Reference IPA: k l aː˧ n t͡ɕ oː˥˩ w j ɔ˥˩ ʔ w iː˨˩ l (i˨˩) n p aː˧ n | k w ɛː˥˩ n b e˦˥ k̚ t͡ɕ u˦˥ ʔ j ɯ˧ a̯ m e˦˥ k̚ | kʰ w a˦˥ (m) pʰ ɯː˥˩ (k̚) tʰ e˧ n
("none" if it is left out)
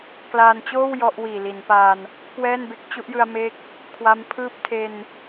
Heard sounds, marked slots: i˩˦, m, p̚

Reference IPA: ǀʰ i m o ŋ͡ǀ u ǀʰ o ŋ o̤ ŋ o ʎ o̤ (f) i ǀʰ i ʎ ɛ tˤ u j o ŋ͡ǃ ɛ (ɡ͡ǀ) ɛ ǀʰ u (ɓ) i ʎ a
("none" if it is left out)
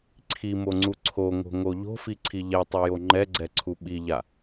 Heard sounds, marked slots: f, ɡ͡ǀ, ɓ

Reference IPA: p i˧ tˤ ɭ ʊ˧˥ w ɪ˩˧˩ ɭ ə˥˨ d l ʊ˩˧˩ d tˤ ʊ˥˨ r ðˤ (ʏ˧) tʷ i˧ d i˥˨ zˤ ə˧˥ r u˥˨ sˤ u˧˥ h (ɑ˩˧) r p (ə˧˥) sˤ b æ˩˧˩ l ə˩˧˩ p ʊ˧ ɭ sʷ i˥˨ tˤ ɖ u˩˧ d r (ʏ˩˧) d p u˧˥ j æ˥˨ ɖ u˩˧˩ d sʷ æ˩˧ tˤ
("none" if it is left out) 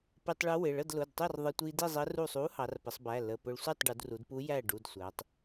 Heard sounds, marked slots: ə˧, ɑ˩˧, ə˩˧, u˩˧

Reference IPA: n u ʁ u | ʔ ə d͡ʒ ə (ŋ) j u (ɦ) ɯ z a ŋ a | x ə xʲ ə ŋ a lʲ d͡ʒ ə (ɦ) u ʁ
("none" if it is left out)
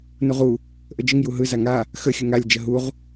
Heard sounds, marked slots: ŋ, ɦ, ɦ

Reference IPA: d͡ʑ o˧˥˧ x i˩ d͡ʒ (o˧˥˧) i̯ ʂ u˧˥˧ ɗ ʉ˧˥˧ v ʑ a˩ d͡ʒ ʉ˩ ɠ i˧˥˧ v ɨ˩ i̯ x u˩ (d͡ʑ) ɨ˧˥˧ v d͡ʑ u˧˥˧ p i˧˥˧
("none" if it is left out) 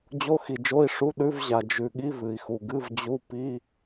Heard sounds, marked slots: o˧˥˧, ɡ

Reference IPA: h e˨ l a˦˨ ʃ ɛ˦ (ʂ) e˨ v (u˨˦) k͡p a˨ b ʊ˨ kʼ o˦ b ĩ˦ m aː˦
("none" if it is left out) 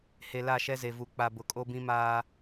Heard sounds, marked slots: z, u˨˦

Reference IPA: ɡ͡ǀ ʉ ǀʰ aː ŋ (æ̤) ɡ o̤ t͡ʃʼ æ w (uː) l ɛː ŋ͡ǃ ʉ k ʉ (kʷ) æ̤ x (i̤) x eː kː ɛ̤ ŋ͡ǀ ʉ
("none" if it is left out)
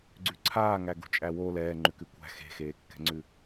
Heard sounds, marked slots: æ, oː, kʷ, e̤

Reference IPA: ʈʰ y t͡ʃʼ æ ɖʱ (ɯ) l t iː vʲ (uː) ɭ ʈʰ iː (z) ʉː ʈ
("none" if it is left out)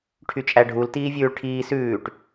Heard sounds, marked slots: u, ʉː, s

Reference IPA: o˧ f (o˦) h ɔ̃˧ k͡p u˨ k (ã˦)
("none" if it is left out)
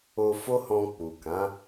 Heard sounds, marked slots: o˦, ã˨˦

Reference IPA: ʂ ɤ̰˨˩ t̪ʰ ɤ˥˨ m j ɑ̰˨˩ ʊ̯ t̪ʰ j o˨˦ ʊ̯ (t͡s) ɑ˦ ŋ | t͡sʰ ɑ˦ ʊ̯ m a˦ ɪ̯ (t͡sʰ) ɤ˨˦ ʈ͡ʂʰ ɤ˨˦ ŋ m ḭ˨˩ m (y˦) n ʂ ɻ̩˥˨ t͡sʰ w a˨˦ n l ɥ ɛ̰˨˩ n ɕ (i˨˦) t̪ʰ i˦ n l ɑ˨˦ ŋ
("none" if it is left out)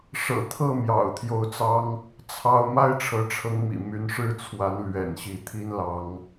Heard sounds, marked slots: t͡s, ʈ͡ʂʰ, y˨˦, i˨˦

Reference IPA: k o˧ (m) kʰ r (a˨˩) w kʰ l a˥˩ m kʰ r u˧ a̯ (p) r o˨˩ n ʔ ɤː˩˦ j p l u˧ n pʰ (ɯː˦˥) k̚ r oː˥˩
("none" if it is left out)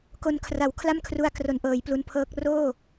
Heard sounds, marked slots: n, a˨˩, k, ɤː˦˥

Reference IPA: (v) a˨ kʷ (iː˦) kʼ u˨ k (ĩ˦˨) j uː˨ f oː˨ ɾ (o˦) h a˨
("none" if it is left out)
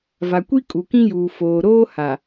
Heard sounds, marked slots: v, i˦, ĩ˦, oː˦

